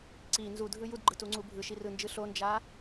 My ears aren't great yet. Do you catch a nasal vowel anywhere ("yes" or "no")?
no